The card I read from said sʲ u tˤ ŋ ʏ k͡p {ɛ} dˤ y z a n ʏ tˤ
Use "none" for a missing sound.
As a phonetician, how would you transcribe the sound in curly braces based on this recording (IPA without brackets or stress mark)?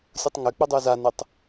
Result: ʏ